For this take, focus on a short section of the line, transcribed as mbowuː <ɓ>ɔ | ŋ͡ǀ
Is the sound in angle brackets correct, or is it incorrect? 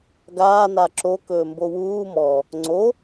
incorrect